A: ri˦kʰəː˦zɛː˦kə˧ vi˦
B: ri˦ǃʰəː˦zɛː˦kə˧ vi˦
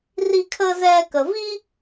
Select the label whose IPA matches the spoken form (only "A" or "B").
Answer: A